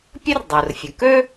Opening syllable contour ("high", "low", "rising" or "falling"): high